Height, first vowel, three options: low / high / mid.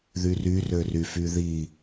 high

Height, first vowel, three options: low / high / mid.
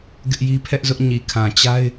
high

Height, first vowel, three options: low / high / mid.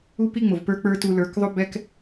high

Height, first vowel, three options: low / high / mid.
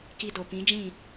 high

